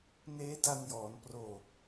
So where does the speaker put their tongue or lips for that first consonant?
tongue tip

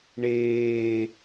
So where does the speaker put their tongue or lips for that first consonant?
retroflex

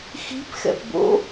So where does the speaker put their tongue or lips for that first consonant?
velum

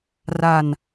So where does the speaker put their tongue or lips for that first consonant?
tongue tip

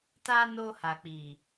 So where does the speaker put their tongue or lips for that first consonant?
tongue tip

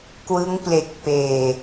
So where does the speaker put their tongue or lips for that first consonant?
velum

